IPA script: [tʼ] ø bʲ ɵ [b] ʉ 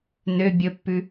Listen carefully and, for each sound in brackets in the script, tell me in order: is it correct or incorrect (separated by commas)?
incorrect, incorrect